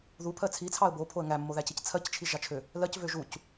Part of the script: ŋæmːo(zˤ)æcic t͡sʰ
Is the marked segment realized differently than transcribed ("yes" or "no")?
yes